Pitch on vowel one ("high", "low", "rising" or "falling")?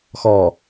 low